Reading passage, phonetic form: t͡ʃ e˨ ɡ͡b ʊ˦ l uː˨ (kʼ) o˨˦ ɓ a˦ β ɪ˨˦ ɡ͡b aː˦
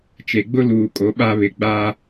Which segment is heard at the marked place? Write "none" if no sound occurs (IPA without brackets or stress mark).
kʼ